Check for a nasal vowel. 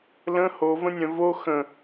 present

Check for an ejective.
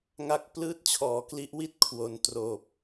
absent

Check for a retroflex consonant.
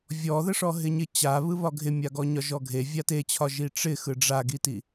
present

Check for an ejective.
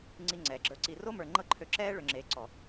absent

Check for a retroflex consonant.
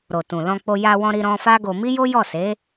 absent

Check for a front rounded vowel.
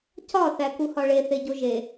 absent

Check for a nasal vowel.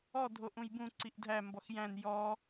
present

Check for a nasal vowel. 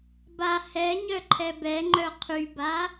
absent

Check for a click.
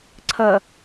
present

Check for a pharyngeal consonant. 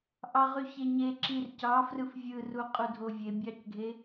absent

